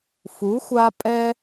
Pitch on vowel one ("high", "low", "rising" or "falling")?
rising